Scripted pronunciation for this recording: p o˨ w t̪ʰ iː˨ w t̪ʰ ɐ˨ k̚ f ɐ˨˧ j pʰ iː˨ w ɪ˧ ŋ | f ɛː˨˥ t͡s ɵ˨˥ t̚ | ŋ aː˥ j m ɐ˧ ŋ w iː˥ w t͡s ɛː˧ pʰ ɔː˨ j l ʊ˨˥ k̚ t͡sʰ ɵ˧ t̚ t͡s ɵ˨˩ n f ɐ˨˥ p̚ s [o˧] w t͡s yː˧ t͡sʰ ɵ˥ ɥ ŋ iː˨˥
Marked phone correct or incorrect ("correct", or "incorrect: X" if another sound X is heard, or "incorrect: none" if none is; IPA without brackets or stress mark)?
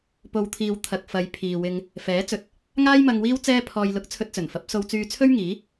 correct